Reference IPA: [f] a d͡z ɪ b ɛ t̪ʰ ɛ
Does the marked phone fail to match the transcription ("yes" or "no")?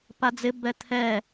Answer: yes